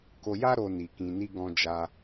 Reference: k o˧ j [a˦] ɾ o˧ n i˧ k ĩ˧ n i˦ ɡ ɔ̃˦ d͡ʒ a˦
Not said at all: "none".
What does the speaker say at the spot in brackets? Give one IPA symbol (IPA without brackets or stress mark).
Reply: a˦